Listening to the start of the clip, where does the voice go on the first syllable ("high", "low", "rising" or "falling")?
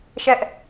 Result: high